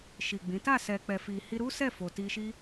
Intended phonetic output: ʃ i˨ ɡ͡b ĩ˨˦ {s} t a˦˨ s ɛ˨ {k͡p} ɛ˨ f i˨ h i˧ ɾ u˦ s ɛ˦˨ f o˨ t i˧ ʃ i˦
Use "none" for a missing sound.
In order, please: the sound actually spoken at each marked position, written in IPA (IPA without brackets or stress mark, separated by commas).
none, k͡p